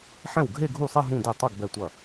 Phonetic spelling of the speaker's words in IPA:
ħ ɛ̃˥˩ w ɡʱ e˥˧ ɡʱ u˥˩ sˤ ɛ˥˧ ɦ ũ˥˧ d e˥˩ tˤ ɐ˥˧ ɡ b ɛ˥˧ tʷ ɐ˥˩

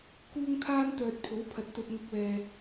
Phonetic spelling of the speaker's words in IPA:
k uː˥ ŋ t̪ʰ aː˥ n t̪ œː˧ t̚ pʰ o˨˥ w pʰ ɐ˨˥ t̚ t̪ ɵ˧ t̚ ŋ ʊ˧ k̚ w ɛː˨

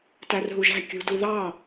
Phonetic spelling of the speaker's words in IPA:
t æ r ɦ u ʒ æ̤ kʲ ṳ d u ð ɑ

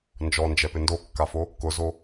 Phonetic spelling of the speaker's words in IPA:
n d͡ʒ ɔ n d͡ʒ ɛ p ɪ n d o kː a f o | k ʊ z o

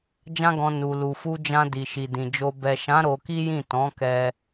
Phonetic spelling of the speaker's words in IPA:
d͡ʒ ã˧ ɡ ɔ̃˨ n u˨ l u˨ f u˧ d͡ʒ ã˧ d i˨ ʃ i˨ d ĩ˨ d͡ʒ o˧ b ɛ˨ ʃ ã˨˦ ɾ o˧ k i˦ j ĩ˦˨ t ɔ̃˨˦ k ɛ˧

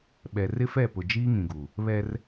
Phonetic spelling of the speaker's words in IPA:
ɓ ɛ˨ r ɪ˦ f ɛ˦˨ p ʊ˨ d͡ʒ iː˦ ŋ ĩ˨ ɡ u˨ | β ɛ˦ r

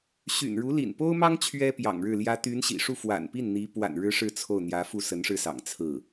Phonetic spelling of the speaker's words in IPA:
ɕ y̰˨˩ n ɻ u˧˥ l ḭ˨˩ n p o˥ ʊ̯ m ɑ˥ ŋ t͡ɕʰ ɥ ɛ˥ p j ɑ̰˨˩ ŋ ɻ ɻ̩˥˩ l j ä˥ t̪ y˧˥ n ɕ ḭ˨˩ ʂ u˥˩ f w a̰˨˩ n p i˥˩ n n̪ i˧˥ p w a̰˨˩ n ɻ ɻ̩˥ ʂ ɻ̩˥˧ t͡sʰ o˥˩ ʊ̯ n̪ j ä˧˥ f u˥˩ s ə˧˥ n ʂ ɻ̩˥˩ s ɑ̰˨˩ ŋ t͡sʰ ɹ̩˥˩

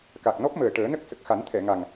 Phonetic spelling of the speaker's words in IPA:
k a˨˩ k̚ n ɔ˦˥ p̚ m əː˨˩ ʈ əː˨˩˦ n ə˦˥ k̚ s ə˨˩ k̚ x a˨˩˦ n t̪ʰ ɛ˨˩˨ ŋ a˨˩ ŋ

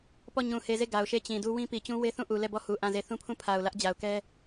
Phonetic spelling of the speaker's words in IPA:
p ɔ˦˨ ɲ ũ˨ h e˨ z e˦˨ ɡ a˨ ʊ̯ ʃ e˦˨ t͡ɕ ĩ˨ d u˦ w ĩ˦ p i˨ t͡ɕ ũ˦ w e˦ θ ũ˦˨ ʔ u˨ l ɛ˦˨ b ɔ˦˨ h u˨ ʔ ã˦˨ z e˦˨ θ ũ˦ pʰ ũ˦˨ pʰ a˨ ʊ̯ l ä˦ ʔ d͡ʑ a˨ ʊ̯ k ɛ˦

